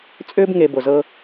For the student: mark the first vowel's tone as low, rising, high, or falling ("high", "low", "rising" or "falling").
high